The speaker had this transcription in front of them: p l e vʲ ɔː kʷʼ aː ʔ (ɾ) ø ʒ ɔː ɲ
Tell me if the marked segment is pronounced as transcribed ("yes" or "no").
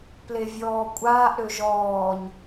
yes